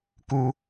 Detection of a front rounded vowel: absent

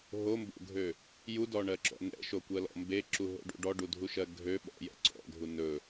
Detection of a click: present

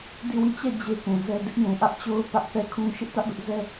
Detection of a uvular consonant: absent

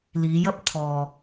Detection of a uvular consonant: absent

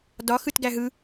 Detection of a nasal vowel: absent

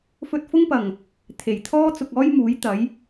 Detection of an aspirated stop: present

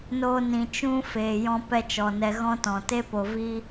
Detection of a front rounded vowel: absent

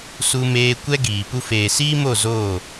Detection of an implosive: absent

